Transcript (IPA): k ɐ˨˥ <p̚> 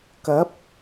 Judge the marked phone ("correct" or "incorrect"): correct